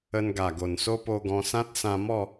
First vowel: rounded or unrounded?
unrounded